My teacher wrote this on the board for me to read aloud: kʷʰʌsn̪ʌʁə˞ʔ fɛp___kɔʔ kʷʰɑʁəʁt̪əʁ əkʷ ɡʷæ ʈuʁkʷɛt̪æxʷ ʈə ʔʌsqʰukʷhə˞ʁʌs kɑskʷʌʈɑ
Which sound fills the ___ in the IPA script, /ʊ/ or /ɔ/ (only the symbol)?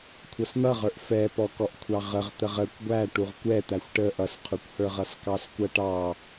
ɔ